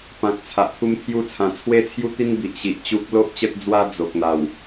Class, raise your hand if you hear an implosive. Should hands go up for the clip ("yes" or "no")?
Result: no